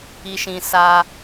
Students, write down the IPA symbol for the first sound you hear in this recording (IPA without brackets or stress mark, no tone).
i